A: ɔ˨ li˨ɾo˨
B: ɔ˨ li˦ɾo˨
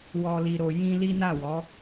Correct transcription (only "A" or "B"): A